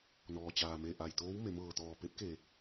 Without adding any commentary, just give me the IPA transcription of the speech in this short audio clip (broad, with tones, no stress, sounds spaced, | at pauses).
n ɔː˩ t͡ɕ aː˩ m e˧˩ ʔ a˧˩ j t̪ oː˧˥ w m e˩˧ m ɤː˧˩ t̪ ɔː˧˩ p e˧˥ p̚ k e˧˩